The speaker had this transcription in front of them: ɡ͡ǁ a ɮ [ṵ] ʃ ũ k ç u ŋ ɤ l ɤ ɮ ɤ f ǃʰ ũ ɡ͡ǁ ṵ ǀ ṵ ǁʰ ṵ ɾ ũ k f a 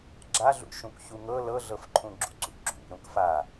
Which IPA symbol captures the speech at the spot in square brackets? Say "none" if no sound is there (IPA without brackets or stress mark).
ṵ